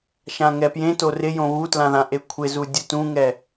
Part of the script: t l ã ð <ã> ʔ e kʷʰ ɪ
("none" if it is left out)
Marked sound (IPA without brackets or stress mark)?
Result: ã